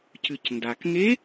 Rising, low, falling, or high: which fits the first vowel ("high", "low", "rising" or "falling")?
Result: low